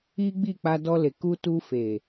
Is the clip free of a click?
yes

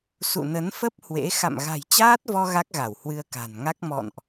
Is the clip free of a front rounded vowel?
yes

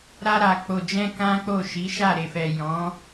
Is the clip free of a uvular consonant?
yes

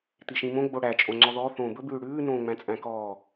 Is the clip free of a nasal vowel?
no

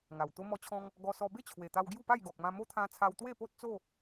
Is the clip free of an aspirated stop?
no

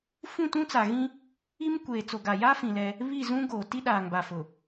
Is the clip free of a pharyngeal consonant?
yes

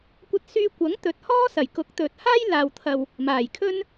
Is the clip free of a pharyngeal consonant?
yes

